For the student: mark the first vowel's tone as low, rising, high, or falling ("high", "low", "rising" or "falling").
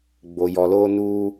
low